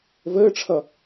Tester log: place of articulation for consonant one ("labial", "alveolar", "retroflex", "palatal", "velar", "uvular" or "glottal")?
labial